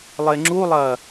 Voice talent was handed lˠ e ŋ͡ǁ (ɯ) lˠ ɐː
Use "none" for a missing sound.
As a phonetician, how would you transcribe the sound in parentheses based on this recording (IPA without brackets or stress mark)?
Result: u